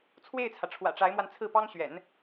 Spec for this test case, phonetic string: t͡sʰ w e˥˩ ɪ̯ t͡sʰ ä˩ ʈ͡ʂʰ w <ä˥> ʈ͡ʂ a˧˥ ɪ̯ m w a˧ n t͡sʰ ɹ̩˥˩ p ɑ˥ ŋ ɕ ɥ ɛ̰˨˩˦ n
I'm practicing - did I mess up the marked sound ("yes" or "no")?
yes